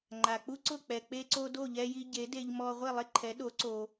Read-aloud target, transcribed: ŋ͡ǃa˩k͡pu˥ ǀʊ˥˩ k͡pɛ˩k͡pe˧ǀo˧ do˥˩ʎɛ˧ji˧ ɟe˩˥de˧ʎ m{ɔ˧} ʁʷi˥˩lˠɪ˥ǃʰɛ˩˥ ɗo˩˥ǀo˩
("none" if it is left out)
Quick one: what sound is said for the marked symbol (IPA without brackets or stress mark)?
ɔ˧